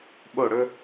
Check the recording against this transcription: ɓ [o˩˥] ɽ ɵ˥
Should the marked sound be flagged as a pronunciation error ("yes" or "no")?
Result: yes